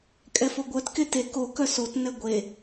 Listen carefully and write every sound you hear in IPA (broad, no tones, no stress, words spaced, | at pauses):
kʼɛfoɡʷœt kete ko kœsot nɛɡʷe